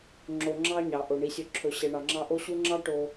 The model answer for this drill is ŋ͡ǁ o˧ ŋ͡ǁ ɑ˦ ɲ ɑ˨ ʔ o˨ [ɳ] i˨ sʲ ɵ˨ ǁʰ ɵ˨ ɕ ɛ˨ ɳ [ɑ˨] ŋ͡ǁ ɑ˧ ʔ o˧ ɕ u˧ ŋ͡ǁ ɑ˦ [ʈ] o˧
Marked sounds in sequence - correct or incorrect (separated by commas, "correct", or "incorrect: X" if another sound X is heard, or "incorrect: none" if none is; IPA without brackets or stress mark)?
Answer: correct, correct, correct